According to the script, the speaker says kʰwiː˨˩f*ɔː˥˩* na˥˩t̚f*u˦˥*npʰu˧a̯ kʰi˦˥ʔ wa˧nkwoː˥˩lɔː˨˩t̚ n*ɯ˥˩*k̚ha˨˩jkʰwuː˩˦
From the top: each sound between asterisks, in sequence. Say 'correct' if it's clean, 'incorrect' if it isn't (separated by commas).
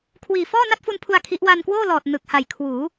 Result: correct, incorrect, incorrect